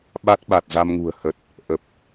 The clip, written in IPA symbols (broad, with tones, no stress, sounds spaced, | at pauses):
ɓ a˦˥ t̚ ɓ a˨˩ t̚ z a˧ m ŋ ṳ˨˩ ə̯ h ə˨˩ t̚ | ʔ ə˨˩ p̚